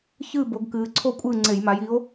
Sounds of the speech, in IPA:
ç ɨː˥˨ b o˨˦ ɡ k ɨː˨˦ ǀʰ o˥˨ kʷʼ ɨː˥˨ ŋ͡ǀ e˧˩˧ j m a˨˦ j i˨˦ o̯

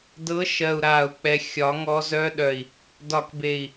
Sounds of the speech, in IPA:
d ɤ˨˦ ʃ ɜ˨ u̯ ɾ aː˨ u̯ k͡p ɛ˨ xʲ ɒ˨˦ ŋ ɔ˦ z œ˦ ɗ œ˨ i̯ | d ɒ˨ k b e˨ i̯

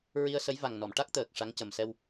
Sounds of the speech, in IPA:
ɹ i˧ ə̯ s ə˧˥ j v a˨˩ ŋ n ɔ˨˩˨ m ʈ a˦˥ k̚ t̪ əː˨˩ k̚ ʂ a˧˥ ŋ c ə˨˩ m s ɛ˧ w

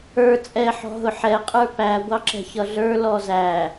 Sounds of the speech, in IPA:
ə˞ t͡sʼ ɛ ħ ɔ̤ ɦ ʊ ħ ɛ qʼ ə˞ p æ ɡʷ ɑ ǁ ɛ̤ ç ʌ ɮ ə˞ l ɔ z æ

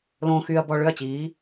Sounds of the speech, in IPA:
l õː˨ x yː˨ ɐ̯ b ɔ˨ ɭ ʏ˦˨ ɐ̯ t͡ɕ iː˨˦

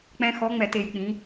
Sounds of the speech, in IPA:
k͡p ɛ̃˧ x ɔ˨˥ ŋ͡m ɛ˧˩˧ t e˩˧ j k͡p ĩ˩˧

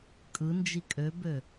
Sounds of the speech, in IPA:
kʼ ɯ n d͡ʒ i kʼ ø b ø

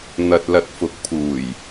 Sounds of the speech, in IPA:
n̪ ɐ˨ t̚ l ɐ˨ t̚ f ʊ˨˥ k̚ pʰ uː˨˩ j

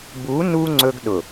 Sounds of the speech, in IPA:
b u˨˦ n u˦ ŋ͡ǀ ɵ˦ ɡ ɗ ʊ˨

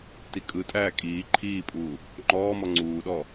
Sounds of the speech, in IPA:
t i kʼ ɯ tʼ æː kʼ iː ǃʰ iː pʼ uː | ŋ͡ǃ ɔː m ɔ ŋ͡ǀ uː ɗ ɔ

